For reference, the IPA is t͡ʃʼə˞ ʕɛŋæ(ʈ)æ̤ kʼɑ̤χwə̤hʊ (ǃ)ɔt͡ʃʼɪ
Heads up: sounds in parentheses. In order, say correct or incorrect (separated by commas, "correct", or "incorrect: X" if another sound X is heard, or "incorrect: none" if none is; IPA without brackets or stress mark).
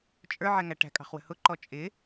correct, correct